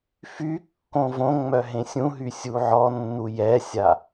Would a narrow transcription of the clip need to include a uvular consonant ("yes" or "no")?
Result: no